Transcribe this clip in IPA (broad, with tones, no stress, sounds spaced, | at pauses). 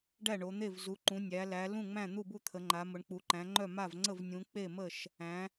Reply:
ɖ æ˥˩ ɳ o˩˧ n̪ e˥˩ v z u˩˧ ǃ ũ˩˧ nʲ æ˩˧ l æ˩˧ l ũ˥˩ ŋ͡m æ̃˥˩ n̪ u˥˩ b u˥˩ t̪ʰ ə˩˧ ŋ͡ǃ a˩˧ m ʊ˩˧ ɳ k͡p u˩˧ ǃ æ̃˩˧ ŋ͡ǃ œ˥˩ m a˥˩ v ŋ͡ǀ ə˥˩ v nʲ ũ˩˧ k͡p e˥˩ m ə˥˩ ʃ | æ̃˩˧